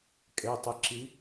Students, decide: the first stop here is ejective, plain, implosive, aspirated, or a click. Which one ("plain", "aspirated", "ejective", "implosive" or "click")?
ejective